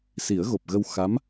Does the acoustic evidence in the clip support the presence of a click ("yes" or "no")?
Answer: no